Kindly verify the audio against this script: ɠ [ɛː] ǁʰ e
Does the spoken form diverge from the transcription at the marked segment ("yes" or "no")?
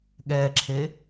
no